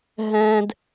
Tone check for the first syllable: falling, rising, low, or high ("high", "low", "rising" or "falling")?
high